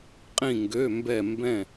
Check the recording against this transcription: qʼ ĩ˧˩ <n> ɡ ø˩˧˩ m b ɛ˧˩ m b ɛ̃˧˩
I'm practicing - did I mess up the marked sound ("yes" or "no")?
yes